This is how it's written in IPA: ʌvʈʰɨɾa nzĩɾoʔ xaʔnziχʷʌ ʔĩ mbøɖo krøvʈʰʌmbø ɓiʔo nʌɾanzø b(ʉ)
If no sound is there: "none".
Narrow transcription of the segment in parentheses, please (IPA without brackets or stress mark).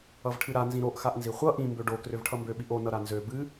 ɨ